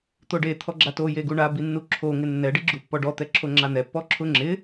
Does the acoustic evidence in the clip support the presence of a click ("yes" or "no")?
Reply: yes